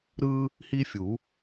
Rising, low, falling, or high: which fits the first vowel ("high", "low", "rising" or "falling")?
high